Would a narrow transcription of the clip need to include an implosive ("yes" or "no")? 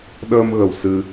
yes